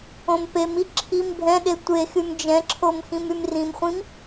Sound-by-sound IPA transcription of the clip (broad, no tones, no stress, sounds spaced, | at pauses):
õ m p e m i ǁʰ i m bʱ ɛ̃ ɗ e tʷ e x y m d͡ʒ ɛ̃ ǁʰ o m x ĩ m y m r ĩ m χʷ ĩ m